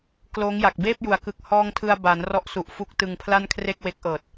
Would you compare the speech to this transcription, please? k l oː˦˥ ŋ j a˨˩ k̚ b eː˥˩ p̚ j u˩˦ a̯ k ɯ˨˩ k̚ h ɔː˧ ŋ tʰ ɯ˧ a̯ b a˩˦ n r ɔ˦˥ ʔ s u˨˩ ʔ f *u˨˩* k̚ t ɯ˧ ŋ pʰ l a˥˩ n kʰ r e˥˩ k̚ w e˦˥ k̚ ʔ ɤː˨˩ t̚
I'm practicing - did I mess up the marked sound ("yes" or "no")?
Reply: yes